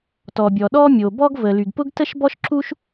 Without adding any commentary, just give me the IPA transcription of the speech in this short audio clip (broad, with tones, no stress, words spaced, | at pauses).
tɔ˩bʲɔ˩ ɗɔ˥mʲo˩ bɔ˥ɡvə˩ ly˩ɡpʊ˥ɡtə˥ʃbɔ˥ʃ ǁu˥ʃ